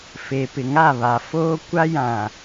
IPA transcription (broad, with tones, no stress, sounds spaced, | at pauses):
f e˨ p ɪ˨ ŋ a˦˨ β a˨ f oː˦ kʷ a˦ j ã˨